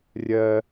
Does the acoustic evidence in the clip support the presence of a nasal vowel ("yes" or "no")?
no